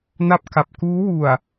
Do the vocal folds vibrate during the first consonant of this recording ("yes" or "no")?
yes